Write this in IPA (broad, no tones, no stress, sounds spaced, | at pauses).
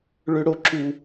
ɭ ø ɽ o ǁ u